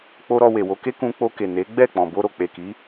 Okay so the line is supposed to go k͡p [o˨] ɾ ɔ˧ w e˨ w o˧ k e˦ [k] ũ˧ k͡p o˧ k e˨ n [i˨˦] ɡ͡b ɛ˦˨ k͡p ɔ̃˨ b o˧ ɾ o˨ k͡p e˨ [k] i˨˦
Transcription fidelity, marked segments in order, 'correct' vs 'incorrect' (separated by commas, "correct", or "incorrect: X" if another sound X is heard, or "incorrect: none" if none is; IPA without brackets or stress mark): incorrect: o˦, correct, incorrect: e˨˦, correct